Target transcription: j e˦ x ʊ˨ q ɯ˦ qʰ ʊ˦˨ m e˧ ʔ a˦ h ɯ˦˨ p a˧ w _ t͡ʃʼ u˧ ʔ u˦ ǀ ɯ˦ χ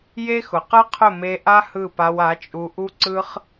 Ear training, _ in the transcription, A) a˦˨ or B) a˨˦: B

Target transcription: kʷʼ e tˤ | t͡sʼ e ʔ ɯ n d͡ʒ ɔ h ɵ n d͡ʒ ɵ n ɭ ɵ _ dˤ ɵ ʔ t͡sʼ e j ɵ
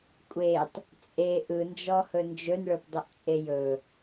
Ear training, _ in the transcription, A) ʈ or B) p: B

